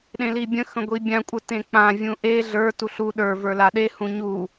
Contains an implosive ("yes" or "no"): yes